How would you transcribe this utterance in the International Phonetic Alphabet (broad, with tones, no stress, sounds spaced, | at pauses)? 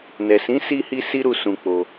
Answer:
n ɛ˨ s ĩ˨˦ s i˦ h i˦ s i˦ ɾ u˦˨ s ũ˧ k͡p o˧